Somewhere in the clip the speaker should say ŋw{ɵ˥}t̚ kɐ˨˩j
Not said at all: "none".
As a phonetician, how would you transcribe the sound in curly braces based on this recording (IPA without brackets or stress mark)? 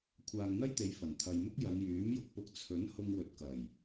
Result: ɵ˨˥